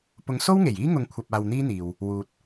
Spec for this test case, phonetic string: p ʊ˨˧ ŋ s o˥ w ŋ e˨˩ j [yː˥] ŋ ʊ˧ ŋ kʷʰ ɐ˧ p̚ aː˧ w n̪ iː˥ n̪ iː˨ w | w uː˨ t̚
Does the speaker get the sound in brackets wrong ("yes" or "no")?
yes